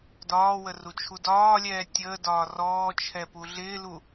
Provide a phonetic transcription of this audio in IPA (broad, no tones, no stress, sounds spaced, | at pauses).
d ɒː w ə r u t͡ʃʰ u d ɒː lʲ ɛː tʲ əː d ɒː r ɔː t͡ʃʰ ɛ p u ɮ ɪː l u